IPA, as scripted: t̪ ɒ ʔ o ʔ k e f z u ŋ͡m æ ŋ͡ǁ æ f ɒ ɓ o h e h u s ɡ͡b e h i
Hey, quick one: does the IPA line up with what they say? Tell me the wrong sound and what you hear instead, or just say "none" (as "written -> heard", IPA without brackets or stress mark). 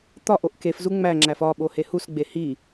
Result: none